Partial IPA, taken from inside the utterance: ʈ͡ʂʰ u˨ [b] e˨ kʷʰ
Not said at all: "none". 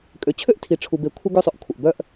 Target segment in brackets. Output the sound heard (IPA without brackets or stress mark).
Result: b